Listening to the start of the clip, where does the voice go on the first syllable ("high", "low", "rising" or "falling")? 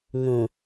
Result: low